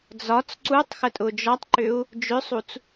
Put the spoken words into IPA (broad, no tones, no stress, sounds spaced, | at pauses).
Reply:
d͡z ɒ t͡s ǀ u tˤ x ə tʼ ʊ d͡ʒ ɒ tˤ ǃ ʏ u̯ | d͡ʒ ʏ sˤ u t͡s